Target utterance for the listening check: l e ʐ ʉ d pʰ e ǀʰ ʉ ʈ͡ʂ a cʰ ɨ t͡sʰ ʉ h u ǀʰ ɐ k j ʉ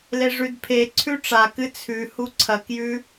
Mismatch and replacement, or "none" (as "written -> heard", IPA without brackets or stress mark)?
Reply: cʰ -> k